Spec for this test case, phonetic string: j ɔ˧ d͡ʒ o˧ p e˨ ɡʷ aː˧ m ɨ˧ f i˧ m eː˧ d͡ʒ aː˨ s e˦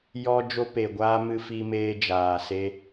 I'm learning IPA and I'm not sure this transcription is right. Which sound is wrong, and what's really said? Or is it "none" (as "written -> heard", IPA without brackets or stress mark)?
none